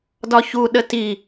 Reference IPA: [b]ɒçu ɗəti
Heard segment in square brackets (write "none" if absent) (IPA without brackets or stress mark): d